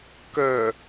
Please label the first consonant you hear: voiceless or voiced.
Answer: voiceless